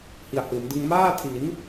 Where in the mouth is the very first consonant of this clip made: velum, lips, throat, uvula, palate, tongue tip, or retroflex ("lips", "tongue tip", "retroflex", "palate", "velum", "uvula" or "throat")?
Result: throat